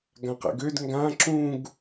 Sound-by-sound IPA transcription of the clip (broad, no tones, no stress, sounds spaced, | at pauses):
ɡ ã q ɛ̰ ɡ ø d ŋ ɡ ã ǁ ũ ɡ